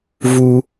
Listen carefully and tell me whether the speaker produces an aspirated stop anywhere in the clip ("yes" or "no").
no